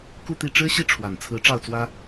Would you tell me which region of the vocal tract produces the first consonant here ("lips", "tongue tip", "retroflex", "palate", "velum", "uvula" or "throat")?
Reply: velum